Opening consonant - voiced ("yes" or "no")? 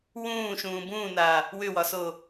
yes